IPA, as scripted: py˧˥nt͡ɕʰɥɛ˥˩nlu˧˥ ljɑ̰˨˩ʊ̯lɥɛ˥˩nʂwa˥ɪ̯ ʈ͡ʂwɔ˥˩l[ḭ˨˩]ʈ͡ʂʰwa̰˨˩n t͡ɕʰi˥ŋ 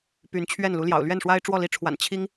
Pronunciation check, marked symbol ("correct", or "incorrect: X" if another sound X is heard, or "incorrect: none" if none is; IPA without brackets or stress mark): incorrect: i˧˥